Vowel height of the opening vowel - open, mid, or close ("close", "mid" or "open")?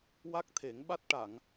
open